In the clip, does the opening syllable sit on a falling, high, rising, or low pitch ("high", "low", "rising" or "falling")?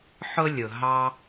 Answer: high